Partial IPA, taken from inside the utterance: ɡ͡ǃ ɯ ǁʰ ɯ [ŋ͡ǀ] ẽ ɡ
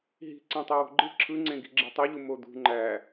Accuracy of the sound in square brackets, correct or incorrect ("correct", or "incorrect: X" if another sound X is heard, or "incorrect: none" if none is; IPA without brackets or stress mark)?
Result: correct